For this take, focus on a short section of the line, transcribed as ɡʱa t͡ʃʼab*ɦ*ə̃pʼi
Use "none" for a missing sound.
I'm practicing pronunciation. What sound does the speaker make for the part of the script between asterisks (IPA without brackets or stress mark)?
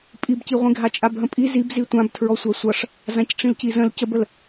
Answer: ɦ